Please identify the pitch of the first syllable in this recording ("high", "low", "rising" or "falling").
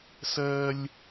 high